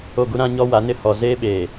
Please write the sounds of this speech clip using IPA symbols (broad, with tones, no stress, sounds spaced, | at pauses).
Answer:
o˦˨ ɡ u˦ ɾ ã˦ ɲ ɔ˦ w a˨˦ n ɪ˦ h ɔ˨ z eː˦ ɓ eː˨